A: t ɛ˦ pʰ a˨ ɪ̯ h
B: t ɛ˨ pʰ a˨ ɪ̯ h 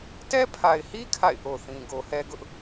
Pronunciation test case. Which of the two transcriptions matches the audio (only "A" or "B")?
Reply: A